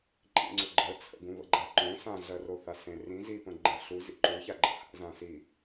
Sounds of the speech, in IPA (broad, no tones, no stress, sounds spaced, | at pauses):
ǃʼ ḭ ŋ͡ǀ ʊ ɡ͡ǃ ə t͡sʰ ə̰ ɡ ũ β ə̰ ɡ͡ǃ a ǃ õ s ã ɮ ɜ r o θ a s ẽ r ĩ z i p ə̃ ɡ͡ǃ ə̃ ɬ u z ḭ ǃ u ç a ɡ͡ǃ ə̰ h a̰ z ã s i